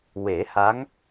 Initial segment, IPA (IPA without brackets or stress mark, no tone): w